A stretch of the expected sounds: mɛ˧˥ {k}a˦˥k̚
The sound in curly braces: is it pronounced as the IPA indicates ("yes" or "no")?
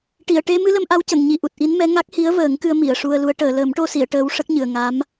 no